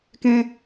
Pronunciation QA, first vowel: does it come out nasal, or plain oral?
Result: nasal